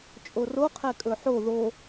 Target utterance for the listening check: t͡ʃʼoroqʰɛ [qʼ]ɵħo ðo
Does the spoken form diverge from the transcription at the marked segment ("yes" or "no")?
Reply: yes